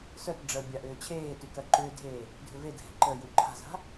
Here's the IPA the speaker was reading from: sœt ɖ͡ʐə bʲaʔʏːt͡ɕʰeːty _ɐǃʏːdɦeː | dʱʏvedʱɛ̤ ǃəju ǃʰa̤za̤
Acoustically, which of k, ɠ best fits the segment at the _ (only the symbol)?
k